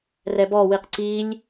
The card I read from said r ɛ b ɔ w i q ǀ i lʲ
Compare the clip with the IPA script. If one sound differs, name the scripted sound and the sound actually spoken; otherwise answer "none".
none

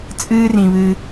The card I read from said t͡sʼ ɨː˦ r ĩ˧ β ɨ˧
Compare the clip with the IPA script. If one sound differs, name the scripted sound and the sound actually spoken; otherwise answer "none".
none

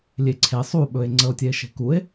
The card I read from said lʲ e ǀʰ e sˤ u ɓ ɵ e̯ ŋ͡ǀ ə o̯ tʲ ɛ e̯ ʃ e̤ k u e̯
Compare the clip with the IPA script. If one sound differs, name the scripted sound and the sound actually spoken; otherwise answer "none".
none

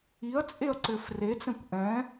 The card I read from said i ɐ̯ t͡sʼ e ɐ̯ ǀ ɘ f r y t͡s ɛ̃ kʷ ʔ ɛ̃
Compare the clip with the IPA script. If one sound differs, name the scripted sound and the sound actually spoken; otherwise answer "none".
y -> e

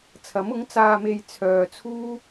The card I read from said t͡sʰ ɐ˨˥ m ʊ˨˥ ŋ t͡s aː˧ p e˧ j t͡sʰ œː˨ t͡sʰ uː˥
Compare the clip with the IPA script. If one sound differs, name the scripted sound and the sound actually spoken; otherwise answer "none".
p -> m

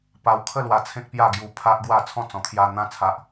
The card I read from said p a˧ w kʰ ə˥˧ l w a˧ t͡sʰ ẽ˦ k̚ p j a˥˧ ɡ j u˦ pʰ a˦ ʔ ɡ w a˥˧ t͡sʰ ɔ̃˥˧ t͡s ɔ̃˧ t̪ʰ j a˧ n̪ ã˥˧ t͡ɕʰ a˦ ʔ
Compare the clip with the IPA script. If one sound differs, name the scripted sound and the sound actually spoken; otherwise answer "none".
t͡ɕʰ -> t͡sʰ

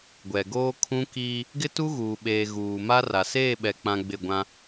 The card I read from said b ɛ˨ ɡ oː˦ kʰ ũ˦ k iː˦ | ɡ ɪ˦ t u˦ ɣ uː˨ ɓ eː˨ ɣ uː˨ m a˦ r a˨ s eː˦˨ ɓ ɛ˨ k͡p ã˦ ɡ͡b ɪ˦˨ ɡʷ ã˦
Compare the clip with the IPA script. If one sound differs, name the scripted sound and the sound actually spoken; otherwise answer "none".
b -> ɡʷ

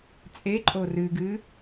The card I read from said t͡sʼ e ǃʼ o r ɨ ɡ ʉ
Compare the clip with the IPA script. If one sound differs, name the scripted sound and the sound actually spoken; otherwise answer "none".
ʉ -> ɨ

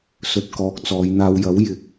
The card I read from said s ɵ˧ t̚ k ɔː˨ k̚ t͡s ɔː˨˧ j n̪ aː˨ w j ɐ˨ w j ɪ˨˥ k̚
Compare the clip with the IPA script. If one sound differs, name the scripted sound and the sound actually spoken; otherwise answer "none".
ɐ˨ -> ɐ˨˥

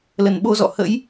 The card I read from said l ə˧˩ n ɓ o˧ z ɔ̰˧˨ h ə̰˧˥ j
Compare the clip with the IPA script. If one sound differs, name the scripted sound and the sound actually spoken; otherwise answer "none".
none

